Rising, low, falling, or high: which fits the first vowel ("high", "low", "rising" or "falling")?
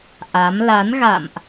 rising